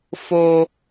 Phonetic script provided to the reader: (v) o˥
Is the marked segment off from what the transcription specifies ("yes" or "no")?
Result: yes